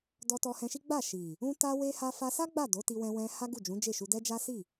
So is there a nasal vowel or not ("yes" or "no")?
yes